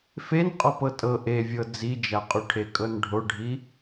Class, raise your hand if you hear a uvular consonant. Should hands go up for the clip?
yes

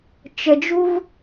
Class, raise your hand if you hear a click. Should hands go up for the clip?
no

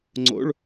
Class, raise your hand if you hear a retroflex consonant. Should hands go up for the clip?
yes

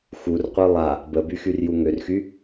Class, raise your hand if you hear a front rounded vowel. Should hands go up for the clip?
yes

